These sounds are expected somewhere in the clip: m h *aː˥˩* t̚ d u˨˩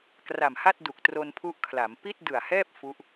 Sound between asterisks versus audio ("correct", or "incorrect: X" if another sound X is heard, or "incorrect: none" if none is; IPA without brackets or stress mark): incorrect: a˥˩